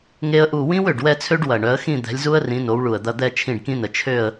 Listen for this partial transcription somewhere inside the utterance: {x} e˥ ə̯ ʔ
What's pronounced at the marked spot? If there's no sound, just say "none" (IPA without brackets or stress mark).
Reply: ŋ